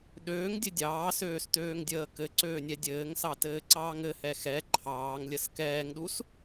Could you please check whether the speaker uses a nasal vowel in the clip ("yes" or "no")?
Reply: no